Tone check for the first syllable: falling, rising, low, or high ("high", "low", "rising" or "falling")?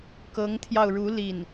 rising